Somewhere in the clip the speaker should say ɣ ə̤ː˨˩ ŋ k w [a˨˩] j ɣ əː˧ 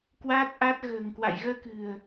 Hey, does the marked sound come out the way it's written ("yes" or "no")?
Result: no